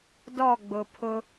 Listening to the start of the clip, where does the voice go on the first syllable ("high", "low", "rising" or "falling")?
falling